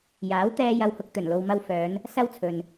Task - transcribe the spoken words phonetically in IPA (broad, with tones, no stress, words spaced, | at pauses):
jaː˨˥wt̪ɛː˧jɐ˨˧whʊ˨k̚ t̪ɵ˨˩nlo˨wmɐ˧wfœː˨˧n | sɐ˥wt͡sʰɵ˨n